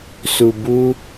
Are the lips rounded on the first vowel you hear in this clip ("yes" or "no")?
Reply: yes